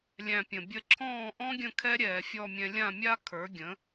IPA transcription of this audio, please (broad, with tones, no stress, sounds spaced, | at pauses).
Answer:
lʲ æ̃˧ pʲ ə̃˩ bʲ ə˥˩ ǁʰ ɔ̃ː˥˩ ʔ ɔ̃˥ ɡʲ ə̃˥˩ kʰ ɛ˥ ɾʲ ɛː˩ fʲ ɔ˥˩ mʲ ɛ̃˧ lʲ ã˥˩ mʲ a˥ kʰ ə˞˩˥ ɡʲ ə̃˩˥